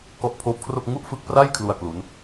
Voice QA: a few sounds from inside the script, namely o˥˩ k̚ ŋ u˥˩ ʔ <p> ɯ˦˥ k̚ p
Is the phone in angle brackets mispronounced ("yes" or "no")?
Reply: yes